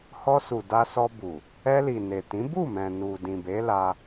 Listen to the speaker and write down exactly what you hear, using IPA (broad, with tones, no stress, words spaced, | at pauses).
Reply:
hɔ˧su˨ da˧sɔ˧bu˨ | ɛ˧li˨ ne˨tĩ˨˦ bu˦˨mɛ̃˨nu˨ dĩ˨be˨˦la˧